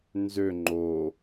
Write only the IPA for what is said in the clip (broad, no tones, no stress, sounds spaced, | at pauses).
n z ø ŋ͡ǃ o